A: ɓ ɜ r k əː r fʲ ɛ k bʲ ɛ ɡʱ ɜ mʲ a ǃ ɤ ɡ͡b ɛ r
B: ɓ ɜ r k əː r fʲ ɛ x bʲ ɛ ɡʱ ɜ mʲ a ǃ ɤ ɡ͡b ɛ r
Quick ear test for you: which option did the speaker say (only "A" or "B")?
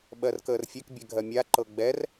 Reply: A